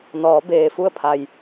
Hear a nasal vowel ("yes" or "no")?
no